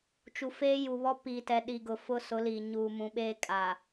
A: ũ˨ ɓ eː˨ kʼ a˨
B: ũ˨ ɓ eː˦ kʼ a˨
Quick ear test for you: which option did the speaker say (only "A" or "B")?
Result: B